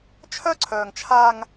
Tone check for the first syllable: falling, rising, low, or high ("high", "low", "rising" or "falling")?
high